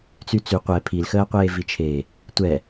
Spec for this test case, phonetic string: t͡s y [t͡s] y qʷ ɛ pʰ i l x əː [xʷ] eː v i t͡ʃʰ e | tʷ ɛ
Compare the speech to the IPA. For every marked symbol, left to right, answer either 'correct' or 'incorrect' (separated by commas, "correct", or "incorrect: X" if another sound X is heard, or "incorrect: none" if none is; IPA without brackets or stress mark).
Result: correct, incorrect: qʷ